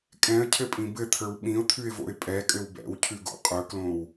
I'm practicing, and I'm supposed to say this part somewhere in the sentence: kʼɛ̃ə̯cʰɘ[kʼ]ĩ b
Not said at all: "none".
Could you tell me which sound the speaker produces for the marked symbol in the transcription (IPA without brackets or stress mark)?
pʼ